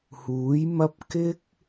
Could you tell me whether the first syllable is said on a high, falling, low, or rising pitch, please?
rising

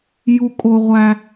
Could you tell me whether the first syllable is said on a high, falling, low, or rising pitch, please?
low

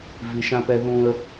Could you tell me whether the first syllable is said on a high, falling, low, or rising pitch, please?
low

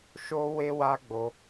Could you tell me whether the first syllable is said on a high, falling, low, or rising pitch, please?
high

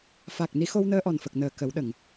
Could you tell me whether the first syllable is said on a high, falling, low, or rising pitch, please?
low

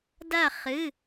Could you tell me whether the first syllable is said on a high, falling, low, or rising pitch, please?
falling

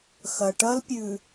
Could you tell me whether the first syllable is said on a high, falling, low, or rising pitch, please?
low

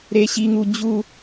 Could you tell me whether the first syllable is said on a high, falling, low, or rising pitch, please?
high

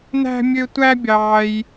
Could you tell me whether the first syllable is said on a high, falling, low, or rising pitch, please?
high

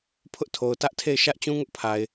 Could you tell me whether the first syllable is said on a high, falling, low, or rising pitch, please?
high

